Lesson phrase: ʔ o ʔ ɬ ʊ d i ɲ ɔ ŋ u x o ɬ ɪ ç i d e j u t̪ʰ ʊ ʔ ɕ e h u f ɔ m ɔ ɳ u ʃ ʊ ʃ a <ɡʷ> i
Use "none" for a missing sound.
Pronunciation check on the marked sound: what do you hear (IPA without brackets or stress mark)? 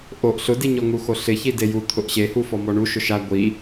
ɡʷ